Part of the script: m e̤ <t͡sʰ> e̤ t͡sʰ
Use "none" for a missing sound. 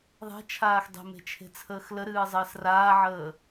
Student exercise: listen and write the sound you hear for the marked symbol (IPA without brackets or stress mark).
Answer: t͡ʃʰ